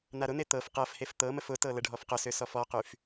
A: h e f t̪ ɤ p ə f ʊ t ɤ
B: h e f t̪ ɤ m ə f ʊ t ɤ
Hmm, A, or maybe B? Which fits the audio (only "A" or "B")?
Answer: B